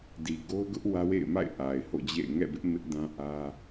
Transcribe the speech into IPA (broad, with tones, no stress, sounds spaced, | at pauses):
d i˨ ɡ o˦ ʊ̯ ɡ ʊ˦ ʔ w ä˦ w ḛ˦˨ ɪ̯ m a̰˦˨ ɪ̯ ʔ a˨ ɪ̯ h o̰˦˨ d͡ʑ ḛ˦˨ ɪ̯ ŋ ɛ̰˦˨ b ɪ˦ ʔ m ɪ˦ ʔ d ã˦ ʔ ä˦